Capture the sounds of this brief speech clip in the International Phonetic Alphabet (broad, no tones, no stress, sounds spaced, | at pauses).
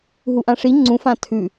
ɦ u ʔ ã ʂ i ŋ͡ǀ ũ f ã tʰ ʉ